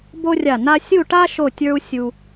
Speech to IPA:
bo˥rʲa˧˩na˥ sʲu˥˧ʈa˥ ʃo˥˧tʲə˞˥u̯sʲu˧

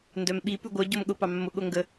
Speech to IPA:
ndœmɓi pʉɡʷœ ɟomɠʊ pɑmːʊ ɠoŋɡə

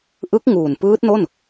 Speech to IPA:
ʔɯ˦˥k̚ŋuː˨˩n pɯː˦˥t̚no˥˩n

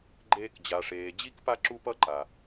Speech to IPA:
ɡ͡ǃeː˧kd͡ʑa˨ʂeː˨ d͡ʑi˦k pa˦ǁu˦pʌ˦ǃa˨

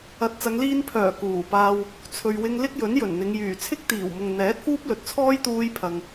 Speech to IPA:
ɐ˨t̚t͡sɐ˨˧ŋliː˧npʰœː˨˩ kuː˨˩paː˧w | t͡sʰɵ˨ɥwɪ˧ŋ lɪ˥k̚jɵ˨˥njɵ˨˩nn̪ɪ˨˧ŋ jyː˨˩t͡sʰɪ˥k̚t̪iː˨˩wmʊ˨ŋ n̪ɛː˨˥t̚fuː˥p̚lɵ˨t̚t͡sʰɔː˥j t̪uː˧jpʰɐ˨ŋ

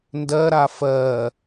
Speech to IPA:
ndɜɾa fɜ

